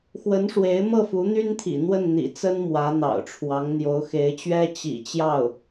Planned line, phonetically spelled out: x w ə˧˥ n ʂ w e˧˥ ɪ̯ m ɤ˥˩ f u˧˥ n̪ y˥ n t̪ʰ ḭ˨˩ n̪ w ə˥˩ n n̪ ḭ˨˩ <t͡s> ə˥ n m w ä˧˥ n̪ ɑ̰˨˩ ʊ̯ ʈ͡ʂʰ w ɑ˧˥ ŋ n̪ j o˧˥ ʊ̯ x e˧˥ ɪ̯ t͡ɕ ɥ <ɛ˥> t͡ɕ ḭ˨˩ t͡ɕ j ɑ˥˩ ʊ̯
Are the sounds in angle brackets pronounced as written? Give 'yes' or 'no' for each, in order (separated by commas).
yes, yes